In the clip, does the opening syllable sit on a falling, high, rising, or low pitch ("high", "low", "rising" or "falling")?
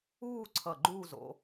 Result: falling